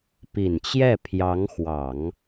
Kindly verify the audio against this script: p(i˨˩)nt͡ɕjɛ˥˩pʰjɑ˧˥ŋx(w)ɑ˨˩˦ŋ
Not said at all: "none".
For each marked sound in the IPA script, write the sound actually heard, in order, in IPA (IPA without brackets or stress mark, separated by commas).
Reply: i˨˩, w